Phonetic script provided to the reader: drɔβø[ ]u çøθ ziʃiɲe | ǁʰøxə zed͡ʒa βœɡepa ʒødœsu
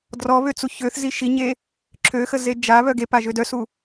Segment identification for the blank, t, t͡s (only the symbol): t͡s